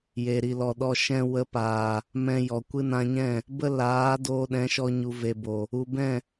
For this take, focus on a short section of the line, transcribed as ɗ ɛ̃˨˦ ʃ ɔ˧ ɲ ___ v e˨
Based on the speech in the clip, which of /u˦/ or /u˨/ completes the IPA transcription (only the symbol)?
u˨